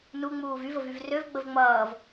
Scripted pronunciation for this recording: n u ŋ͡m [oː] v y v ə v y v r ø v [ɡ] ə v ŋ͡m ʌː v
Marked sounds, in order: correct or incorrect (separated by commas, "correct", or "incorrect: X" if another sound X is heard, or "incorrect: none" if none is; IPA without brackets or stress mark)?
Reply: incorrect: uː, incorrect: ɡ͡b